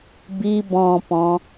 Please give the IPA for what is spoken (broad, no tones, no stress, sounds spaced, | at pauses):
b i b ɔ̃ p ɔ̃